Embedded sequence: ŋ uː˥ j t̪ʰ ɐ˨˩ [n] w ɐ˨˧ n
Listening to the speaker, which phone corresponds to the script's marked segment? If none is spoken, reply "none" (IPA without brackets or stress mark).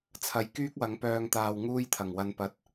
ŋ